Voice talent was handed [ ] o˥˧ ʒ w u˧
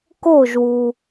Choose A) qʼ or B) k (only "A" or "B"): B